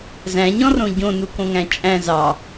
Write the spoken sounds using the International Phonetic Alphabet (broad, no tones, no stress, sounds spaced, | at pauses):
z æ̃ ɲ ɔ̃ r õ ɟ õ n u k õ ŋ æ̃ t͡ʃʼ æ̃ z ɑ